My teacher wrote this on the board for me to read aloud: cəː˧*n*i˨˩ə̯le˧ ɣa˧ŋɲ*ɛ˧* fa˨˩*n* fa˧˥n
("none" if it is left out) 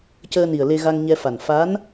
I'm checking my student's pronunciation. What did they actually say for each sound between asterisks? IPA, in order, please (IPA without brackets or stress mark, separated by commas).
n, ɛ˧, n